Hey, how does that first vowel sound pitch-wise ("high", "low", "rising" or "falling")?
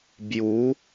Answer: rising